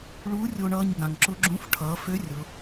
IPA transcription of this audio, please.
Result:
ɭ uː˧˥ rʲ o˧ ɳ ʌː˧ ɲ ɡ ã˩ ŋ ǁ ʊ˧˥ ɡ͡ǁ ũ˧˥ f ʈʰ ʌː˩˧ f ø˧˥ rʲ ʊ˩˧

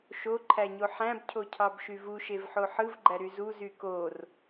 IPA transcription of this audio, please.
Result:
ʃ o ǃʰ æ ɲ o ħ æ̃ b cʰ o cʰ ɑ b ʃ y v u ʃ e v ħ o ħ ɯ v ɡ͡ǃ æ ɾ y z u z y k o r

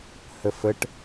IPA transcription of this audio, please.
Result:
h ə f ə ʈ

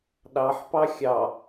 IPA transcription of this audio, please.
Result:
ɗ ɑ ħ p ɑ xʲ ɑ

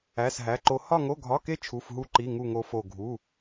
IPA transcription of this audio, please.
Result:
æ˧˥˧ s ɦ æ˧˥˧ ǃ o˦˥ h ɒ˥˧ ŋ o˧˥˧ ɡʱ ɒ˧˥˧ k e˦˥ t͡ʃʰ u˧˥˧ f ɦ u˦˥ ǃ i˧˥˧ ŋ u˥˧ ŋ o˦˥ f o˥˧ ɡʱ u˧˥˧

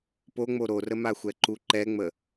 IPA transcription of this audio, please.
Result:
p o ŋ͡m o ɾ o r ə m a xʷ ɛ ǃ u ǃ ɛ ŋ͡m ə

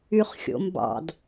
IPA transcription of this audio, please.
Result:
y χ xʲ o̰ m b ɑ̰ d

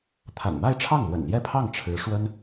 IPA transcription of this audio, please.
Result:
t̪ʰ a̰˨˩ n m a˥˧ ɪ̯ ʈ͡ʂʰ ɑ˥˩ ŋ l w ə̰˨˩ n l j ɛ˥˧ pʰ ɑ˥˩ ŋ ʈ͡ʂʰ ɻ̩˧˥ ʂ w ə˥ n

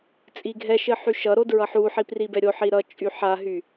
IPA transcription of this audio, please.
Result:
t͡sʼ i ɡʱ ɛ ʃ ɘ ħ y ʃ ʌ ɾ o d ɹ ʌ ħ u ħ i p r i b ɛ ɾʲ o ħ i ɾ ʌ t͡ʃʼ y ħ a ɦ y

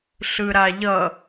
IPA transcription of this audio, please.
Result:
ɬ ɯ ɾ a ʎ ʌ

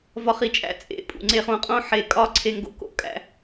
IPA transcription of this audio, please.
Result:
v ɒ˧ χ i˨ t͡ʃʼ æ̰˦˨ t͡sʼ ḛ˨ pʼ ṵ˨ ŋ͡ǀ e˧ χ õ˧ qʼ õ˦ ħ e˧ kʼ ɒ˦ ǀʰ e˧ ŋ ɡ o̰˧ k o̰˦ kʼ æ̰˧

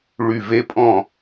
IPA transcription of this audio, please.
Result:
ɭ y˨˩ v e˧˥˧ pʼ ɔ̃˥˩

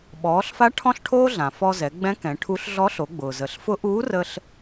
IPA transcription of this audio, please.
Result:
ɓ ɔː˩˧ ɬ f a˧˥ ʈʰ ɔ̃˥ ɬ ʈʰ oː˥ ɮ ã˩ f ɔ˧ z ɛ˩˧ ɡ͡b ɛ̃˧˥ k ɛ̃˩˧ ʈʰ u˧˥ ɬ ɮ ɔ˧˥ ɬ o˩˧ ɡ͡b ʊː˩ z ə˩˧ ɬ f ʊ˧˥ ʔ uː˧˥ r ə˧ ɬ

